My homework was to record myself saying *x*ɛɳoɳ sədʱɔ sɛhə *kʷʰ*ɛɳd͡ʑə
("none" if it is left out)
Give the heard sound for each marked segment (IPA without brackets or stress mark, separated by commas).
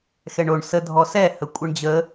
x, kʷʼ